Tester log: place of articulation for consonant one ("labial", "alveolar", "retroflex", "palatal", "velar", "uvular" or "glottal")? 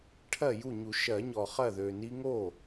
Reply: retroflex